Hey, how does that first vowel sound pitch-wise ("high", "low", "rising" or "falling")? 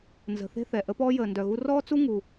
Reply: low